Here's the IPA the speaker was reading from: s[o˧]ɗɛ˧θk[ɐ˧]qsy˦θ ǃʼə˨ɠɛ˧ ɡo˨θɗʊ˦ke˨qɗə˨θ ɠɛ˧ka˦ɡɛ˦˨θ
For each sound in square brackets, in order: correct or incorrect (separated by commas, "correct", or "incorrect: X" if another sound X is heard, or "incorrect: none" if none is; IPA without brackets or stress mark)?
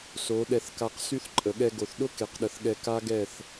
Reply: incorrect: o˨˦, incorrect: a˧